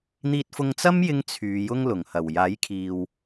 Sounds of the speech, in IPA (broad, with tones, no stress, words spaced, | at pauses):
n̪iː˧t̚fʊ˧ŋt͡sɐ˥m jɪ˥ŋt͡sʰyː˨˧jʊ˥ŋ lʊ˨˩ŋhɐ˨˩w jaː˨˥jkʰiː˨w